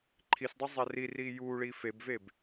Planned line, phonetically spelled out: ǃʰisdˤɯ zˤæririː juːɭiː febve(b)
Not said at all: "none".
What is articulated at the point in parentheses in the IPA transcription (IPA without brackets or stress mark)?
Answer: b